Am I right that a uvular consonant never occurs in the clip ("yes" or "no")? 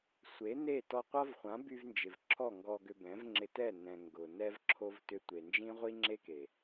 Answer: no